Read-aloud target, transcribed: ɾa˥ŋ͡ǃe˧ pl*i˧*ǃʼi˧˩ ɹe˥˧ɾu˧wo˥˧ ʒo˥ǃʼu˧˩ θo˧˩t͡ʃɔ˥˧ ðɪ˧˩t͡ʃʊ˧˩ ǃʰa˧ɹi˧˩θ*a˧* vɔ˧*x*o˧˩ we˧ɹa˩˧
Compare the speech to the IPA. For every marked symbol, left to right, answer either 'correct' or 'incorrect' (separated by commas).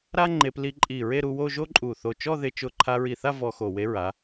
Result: correct, incorrect, correct